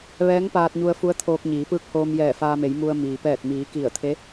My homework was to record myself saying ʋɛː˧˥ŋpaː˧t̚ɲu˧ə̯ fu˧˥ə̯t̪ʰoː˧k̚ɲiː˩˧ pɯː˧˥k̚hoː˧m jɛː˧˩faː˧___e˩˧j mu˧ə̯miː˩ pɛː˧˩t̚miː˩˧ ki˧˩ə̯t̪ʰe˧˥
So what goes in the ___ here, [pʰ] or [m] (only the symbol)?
m